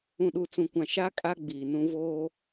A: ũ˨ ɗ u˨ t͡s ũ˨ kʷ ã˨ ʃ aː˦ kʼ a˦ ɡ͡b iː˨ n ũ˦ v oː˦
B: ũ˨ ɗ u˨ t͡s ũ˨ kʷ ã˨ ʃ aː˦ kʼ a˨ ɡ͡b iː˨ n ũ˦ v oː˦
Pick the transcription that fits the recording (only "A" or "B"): A